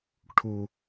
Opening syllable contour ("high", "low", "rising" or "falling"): low